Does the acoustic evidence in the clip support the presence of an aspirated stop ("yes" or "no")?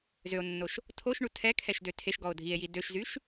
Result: yes